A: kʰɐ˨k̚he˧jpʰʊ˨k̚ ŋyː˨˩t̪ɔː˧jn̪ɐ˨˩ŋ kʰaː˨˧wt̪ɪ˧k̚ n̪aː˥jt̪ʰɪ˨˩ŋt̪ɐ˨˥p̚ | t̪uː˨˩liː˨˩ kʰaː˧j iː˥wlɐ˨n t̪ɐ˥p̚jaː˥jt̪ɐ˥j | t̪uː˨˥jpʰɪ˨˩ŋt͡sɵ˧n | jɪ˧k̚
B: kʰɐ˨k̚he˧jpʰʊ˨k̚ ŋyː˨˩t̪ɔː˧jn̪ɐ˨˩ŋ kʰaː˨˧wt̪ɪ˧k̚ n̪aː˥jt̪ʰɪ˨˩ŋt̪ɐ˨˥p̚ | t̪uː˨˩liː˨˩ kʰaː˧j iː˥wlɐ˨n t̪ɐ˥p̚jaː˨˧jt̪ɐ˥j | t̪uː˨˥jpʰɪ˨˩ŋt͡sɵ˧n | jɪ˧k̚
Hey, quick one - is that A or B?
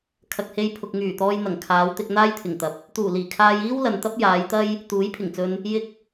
B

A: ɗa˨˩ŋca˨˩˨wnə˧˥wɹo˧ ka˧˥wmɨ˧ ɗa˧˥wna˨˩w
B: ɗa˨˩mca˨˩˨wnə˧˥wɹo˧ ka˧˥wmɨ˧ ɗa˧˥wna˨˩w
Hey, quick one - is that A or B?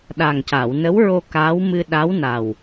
A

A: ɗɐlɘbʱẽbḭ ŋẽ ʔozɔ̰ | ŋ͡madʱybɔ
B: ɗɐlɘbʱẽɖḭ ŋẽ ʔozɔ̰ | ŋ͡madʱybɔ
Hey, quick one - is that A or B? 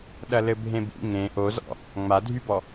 A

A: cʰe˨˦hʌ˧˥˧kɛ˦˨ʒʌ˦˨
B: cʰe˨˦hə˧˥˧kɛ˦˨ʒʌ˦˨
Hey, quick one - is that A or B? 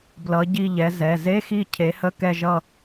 B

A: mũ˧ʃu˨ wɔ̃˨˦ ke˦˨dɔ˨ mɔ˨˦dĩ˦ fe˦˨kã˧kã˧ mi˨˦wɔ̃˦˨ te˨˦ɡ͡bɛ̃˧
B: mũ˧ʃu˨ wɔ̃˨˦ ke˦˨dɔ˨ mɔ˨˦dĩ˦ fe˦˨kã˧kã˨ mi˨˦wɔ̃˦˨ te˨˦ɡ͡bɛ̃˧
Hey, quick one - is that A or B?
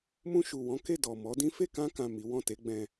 B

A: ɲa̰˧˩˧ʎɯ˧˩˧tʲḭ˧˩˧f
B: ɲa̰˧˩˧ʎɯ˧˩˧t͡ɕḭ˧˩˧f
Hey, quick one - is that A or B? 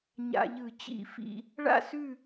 B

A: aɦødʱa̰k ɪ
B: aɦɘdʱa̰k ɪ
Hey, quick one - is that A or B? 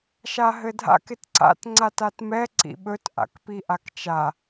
B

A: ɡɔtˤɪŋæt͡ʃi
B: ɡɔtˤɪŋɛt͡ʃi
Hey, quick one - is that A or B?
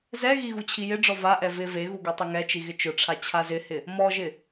B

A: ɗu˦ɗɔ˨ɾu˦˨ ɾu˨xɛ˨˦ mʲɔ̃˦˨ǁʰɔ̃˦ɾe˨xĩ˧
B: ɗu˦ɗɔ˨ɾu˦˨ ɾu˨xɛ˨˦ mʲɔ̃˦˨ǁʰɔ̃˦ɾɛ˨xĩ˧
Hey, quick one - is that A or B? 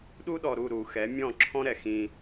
B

